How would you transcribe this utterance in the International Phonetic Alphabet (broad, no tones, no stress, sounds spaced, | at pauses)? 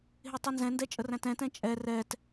ɦ ɪ tˤ ɛ n z ɛ̃ n d ɛ t͡ʃʼ ə r æ̃ t ɛ̃ t ɛ̃ t͡ʃʼ ɛ r ɛ t